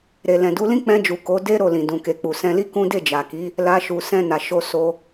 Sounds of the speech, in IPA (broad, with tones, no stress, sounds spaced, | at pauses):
ɾ e˨ l ɛ̃˨ d u˨˦ l ĩ˦ k͡p ɛ̃˧ d͡ʒ u˨ k o˨˦ d e˦ ɾ o˦˨ l ĩ˨ d ũ˨ k e˨ k͡p u˨ s ɛ̃˧ l i˦ k ũ˦ d e˦˨ d͡ʒ a˨ k i˨˦ | l a˧ ʃ u˨ s ɛ̃˧ n a˨ ʃ o˧ s o˧